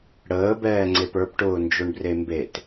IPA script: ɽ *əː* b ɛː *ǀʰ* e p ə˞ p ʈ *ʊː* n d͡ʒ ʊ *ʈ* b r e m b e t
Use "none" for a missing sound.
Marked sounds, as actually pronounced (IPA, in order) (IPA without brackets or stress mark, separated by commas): əː, ŋ͡ǀ, ʊː, ɳ